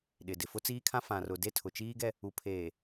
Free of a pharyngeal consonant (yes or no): yes